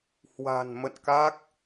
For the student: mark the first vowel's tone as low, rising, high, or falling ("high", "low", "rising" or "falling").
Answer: low